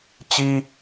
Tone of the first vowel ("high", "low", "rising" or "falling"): high